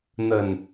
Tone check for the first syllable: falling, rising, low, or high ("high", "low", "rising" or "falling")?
low